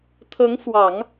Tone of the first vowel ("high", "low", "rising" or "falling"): rising